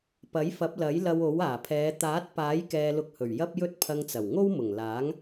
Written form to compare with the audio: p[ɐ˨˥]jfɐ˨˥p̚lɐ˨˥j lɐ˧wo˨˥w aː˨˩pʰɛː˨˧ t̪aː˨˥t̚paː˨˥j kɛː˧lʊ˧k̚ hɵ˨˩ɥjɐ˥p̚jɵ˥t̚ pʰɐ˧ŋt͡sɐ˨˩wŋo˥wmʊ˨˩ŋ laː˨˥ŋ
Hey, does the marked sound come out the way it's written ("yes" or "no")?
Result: yes